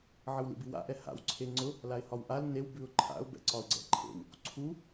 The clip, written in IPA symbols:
ʕ ə w l ḭ b i w a̰ ʔ ɛ h a̰ w ǀʰ e ŋ͡ǀ ʊ | l a ɪ̯ h ɒ w ʔ a l n e w b ʉ ʊ̯ ǃʰ a̰ ʊ̯ b ɛ̰ ǀ ɒ ʊ̯ ɡ͡ǀ ɛ̰ ǃʰ ḛ w | ǀʰ u

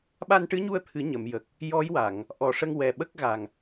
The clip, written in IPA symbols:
ɓ a˧ n ʈ ɨ˧˥ ɲ u˧ ə̯ t̪ʰ ɨ˨˩˦ ɲ ə˨˩˨ m j ə˨˩ k̚ | j ɔ˧˥ j w a˨˩˨ ŋ | ʔ ɔ˨˩ ʂ ə˧ ŋ w ɛ˨˩ ɓ ə˦˥ k̚ ɣ a˨˩ ŋ

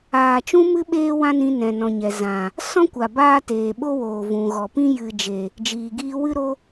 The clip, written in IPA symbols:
aː˨ t͡ʃ ũ˧ m ɨ˧ ɓ eː˦ w ã˦ n ĩ˧ n ɛ̃˨ n ɔ̃˨ ɲ ɛ˨ z ã˨ | s ɔ̃˦ kʷ a˨ b aː˦ t eː˨ ɓ o˦ w oː˨ v ũ˨ ɣ ɔ˨ p ĩ˦ j ɨ˨ d͡ʒ e˨ | d͡ʒ iː˨ ɡ iː˧ w ɨ˦ ɾ o˦

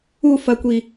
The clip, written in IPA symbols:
u f ɐ kʷ i

